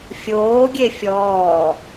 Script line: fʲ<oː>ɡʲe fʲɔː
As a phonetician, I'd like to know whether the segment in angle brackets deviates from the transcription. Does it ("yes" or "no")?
no